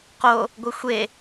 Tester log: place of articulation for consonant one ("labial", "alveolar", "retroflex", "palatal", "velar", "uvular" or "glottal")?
uvular